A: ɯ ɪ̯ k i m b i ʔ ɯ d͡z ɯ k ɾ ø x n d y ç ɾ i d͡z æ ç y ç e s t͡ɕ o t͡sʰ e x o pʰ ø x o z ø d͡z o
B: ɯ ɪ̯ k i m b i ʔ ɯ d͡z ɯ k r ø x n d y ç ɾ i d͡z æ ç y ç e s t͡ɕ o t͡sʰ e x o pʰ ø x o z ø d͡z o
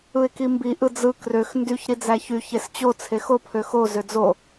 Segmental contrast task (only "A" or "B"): B